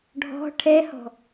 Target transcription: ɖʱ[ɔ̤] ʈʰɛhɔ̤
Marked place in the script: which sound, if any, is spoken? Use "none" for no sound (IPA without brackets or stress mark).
ɔ̤